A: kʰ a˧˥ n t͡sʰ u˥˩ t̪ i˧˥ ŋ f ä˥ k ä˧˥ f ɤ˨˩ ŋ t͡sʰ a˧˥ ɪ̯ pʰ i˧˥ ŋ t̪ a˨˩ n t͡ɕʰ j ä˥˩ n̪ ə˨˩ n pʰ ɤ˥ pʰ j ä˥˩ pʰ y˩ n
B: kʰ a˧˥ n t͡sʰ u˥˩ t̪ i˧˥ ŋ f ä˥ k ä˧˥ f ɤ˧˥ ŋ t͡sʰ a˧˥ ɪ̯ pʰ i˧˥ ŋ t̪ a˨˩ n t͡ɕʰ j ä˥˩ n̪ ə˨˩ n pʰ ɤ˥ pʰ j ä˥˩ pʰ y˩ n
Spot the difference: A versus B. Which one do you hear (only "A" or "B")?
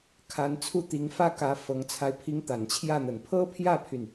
B